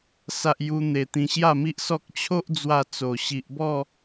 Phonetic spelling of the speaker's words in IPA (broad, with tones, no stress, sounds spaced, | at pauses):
s a˦ ʔ j u˦ n̪ e˧ t̪ ĩ˧ ɕ j a˥˧ m i˦ ʔ s ɔ˦ k̚ t͡ɕʰ o˦ ʔ d͡z w a˧ t͡s o˨˩ ɕ i˨ ʔ b ɔ˥˧